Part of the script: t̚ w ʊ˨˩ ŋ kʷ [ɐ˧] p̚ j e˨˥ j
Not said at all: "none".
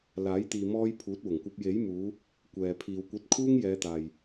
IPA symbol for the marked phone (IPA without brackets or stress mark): ɐ˧